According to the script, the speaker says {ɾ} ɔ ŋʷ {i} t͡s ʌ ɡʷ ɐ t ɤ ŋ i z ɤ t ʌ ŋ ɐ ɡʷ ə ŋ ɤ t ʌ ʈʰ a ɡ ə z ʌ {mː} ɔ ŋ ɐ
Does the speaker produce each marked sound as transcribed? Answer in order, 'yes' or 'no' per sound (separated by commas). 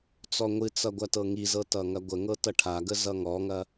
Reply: no, no, no